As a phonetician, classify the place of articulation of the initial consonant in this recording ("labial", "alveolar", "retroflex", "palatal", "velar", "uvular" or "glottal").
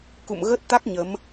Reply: velar